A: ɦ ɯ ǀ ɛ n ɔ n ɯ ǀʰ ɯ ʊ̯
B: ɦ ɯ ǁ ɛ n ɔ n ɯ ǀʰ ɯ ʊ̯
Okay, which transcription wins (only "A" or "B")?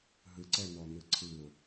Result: A